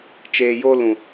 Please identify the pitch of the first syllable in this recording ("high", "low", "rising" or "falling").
low